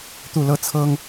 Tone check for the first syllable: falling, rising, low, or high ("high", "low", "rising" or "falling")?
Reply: falling